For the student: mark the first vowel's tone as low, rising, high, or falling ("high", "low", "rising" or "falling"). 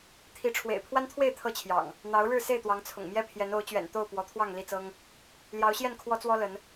rising